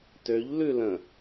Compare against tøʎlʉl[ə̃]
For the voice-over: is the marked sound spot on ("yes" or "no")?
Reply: yes